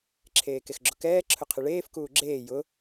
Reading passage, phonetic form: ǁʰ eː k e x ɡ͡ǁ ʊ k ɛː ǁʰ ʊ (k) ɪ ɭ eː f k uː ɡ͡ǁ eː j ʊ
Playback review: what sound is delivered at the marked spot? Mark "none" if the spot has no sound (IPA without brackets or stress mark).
qʰ